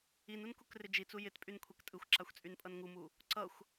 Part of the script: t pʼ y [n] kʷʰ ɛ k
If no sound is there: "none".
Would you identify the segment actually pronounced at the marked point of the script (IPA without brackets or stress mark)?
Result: n